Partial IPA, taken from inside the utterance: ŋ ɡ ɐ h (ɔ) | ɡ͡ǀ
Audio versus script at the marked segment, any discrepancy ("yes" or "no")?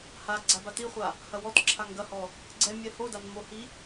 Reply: no